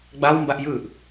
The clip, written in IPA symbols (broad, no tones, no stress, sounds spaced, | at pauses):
ɡ͡b a w m b a ʔ j ɯ ʔ